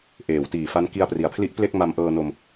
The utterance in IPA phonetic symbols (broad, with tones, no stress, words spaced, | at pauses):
ʔeː˩˦wtiː˨˩fa˦˥n ki˧a̯pri˩˦a̯pʰli˦˥ʔple˥˩k̚ ma˧mʔɤː˧no˧m